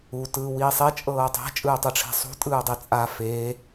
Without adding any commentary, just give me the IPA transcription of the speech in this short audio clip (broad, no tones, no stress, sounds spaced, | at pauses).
u t ɯː w iː sˤ e t͡ʃʼ ɤː tˤ ɛ̤ t͡ʃʼ ɯː tˤ ɯ ʈ͡ʂʰ ɛ̤ sˤ ṳ tʼ ɯː dˤ i t͡sʼ a f e